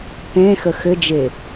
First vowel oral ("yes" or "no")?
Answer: no